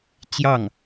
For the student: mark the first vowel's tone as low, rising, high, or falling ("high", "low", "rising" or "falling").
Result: falling